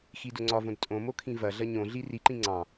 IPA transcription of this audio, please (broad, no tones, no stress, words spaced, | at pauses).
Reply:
xidʊŋ͡ǀɒvõd tʼõ mokʰĩvɐɮɐ ɲõɮi riǃĩ ŋ͡ǀɑ̃